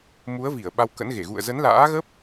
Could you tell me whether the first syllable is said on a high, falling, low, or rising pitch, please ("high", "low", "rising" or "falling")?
rising